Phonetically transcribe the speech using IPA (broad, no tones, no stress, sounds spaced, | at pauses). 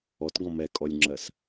ɔ t ɡ ɔ̃ m ɛ kʼ ɔ lʲ ŋ͡ǁ ɜ s